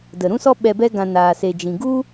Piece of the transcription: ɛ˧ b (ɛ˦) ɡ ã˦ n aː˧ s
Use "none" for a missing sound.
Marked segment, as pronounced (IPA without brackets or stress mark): ɛ˦